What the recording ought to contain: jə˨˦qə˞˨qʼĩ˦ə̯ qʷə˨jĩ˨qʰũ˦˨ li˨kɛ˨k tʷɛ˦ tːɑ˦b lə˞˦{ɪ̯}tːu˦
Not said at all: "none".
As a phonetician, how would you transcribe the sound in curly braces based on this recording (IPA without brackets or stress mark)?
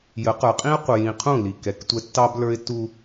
ɪ̯